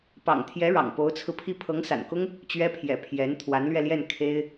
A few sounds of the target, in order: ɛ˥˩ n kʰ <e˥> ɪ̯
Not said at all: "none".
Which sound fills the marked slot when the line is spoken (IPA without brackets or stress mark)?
e˥